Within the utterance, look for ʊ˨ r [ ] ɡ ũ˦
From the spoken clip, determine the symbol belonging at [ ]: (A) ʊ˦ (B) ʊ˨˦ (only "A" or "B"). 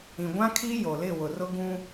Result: A